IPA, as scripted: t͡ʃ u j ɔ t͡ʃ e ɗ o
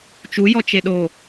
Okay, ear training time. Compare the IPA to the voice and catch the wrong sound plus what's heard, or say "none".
none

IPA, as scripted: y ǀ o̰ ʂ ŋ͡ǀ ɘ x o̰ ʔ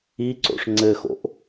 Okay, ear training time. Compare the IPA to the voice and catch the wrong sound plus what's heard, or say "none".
y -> i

